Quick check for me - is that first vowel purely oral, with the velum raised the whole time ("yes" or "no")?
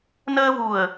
yes